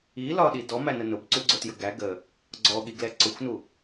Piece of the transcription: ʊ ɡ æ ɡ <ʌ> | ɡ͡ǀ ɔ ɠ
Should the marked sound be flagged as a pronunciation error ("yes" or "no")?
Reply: yes